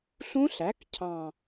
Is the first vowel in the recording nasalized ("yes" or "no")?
yes